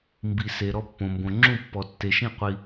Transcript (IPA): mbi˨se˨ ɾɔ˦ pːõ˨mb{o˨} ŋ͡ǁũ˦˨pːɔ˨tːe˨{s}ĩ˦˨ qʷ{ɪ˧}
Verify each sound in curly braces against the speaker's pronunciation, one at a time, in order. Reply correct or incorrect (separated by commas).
incorrect, incorrect, incorrect